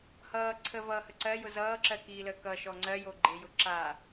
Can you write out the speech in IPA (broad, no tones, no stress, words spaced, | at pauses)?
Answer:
hʌː ǀʰəvʌːhə ǀɜjʊ zʌːǁɜkiːləː kʌʃɔ ŋ͡ǀɜjoɡ͡ǃejʊ ǁa